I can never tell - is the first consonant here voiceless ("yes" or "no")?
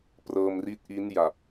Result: yes